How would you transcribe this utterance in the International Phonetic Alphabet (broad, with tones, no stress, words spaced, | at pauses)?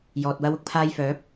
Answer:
jɔː˨t̚wɐ˧w ʊ˨˥k̚pʰaː˧jfœː˨˥p̚